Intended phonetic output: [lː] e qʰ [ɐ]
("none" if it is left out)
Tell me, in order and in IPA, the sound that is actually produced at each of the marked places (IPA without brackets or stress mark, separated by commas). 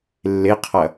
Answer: lː, ɐ